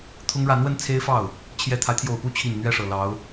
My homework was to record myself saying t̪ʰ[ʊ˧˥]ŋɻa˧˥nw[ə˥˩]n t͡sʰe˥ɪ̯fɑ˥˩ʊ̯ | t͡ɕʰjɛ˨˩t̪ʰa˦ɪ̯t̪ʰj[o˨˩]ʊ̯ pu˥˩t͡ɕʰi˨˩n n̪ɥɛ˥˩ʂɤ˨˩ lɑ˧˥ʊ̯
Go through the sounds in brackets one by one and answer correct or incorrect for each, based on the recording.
incorrect, incorrect, correct

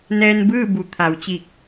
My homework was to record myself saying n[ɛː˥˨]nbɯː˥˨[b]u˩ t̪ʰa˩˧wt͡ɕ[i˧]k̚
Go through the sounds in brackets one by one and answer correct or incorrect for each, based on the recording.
incorrect, correct, incorrect

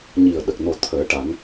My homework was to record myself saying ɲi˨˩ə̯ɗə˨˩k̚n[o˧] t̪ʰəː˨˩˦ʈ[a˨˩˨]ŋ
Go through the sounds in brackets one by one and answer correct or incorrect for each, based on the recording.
incorrect, incorrect

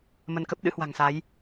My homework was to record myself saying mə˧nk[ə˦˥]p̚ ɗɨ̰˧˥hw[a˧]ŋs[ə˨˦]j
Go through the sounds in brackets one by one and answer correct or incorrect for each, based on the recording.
correct, incorrect, incorrect

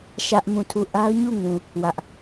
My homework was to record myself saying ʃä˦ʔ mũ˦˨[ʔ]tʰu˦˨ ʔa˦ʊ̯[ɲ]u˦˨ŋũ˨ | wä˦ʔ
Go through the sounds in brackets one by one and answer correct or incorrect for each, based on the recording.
incorrect, correct

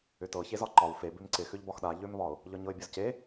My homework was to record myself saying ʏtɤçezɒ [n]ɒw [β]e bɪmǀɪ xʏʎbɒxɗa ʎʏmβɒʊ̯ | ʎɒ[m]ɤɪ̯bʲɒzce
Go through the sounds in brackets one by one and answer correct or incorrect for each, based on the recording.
incorrect, incorrect, incorrect

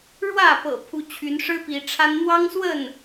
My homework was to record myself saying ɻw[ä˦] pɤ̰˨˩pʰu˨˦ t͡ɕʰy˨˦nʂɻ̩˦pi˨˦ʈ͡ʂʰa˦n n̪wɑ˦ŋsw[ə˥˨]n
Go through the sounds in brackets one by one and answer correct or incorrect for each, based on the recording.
incorrect, correct

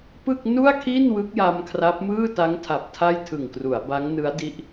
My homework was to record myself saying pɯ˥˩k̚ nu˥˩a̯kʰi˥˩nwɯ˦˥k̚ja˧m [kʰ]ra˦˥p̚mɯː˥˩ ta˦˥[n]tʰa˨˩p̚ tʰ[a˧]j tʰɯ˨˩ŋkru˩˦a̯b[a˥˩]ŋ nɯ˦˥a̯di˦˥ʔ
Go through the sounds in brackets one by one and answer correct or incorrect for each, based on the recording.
correct, incorrect, incorrect, incorrect

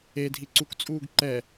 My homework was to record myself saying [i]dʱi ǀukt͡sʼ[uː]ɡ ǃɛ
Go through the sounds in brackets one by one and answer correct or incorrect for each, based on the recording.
incorrect, correct

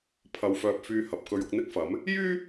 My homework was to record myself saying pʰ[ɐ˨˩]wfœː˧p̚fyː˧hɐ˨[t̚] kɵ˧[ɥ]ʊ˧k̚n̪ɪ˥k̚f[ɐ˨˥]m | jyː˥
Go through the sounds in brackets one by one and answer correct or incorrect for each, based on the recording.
incorrect, incorrect, correct, correct

